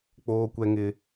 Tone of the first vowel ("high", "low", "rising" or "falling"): high